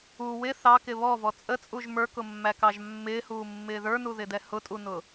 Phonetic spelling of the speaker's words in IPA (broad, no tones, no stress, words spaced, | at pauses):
u wɪ θɑkɪ βɔvɔ t͡sʼət͡sʼuʒ mə˞kʊmːækɑʒ mːɪːhuːmːɪː ðə˞nuðɪdɛ hʊtʼunʊ